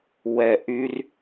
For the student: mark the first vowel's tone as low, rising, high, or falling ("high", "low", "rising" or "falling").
low